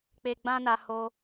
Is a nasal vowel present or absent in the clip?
present